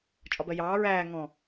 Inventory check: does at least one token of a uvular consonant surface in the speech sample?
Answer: no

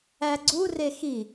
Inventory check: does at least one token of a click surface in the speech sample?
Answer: yes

